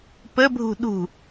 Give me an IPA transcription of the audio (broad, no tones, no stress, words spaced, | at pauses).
pəbʱṳ ɗṳ